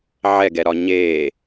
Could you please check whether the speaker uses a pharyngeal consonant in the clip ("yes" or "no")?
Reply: yes